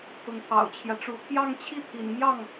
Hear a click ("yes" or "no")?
no